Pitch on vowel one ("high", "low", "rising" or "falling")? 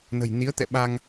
low